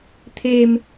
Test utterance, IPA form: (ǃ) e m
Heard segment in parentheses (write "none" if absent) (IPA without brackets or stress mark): t̪ʰ